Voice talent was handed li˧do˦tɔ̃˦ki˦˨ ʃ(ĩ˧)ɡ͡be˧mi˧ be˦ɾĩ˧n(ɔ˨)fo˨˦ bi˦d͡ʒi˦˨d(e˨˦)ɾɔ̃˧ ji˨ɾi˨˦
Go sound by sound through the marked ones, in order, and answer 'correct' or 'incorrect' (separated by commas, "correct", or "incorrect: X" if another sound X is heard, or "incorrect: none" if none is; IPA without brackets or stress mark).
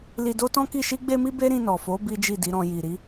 incorrect: i˧, correct, incorrect: i˨˦